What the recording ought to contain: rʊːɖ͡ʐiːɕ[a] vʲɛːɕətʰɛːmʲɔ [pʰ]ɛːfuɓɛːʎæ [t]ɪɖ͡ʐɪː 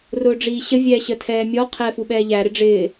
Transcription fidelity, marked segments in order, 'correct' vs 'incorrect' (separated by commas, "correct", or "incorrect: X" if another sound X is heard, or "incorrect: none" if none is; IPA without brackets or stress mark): incorrect: ə, incorrect: qʰ, incorrect: ɾ